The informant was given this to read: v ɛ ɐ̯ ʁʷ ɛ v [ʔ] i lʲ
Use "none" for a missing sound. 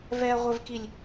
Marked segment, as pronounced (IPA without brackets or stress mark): k